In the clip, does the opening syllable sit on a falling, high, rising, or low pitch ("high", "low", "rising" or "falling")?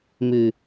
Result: low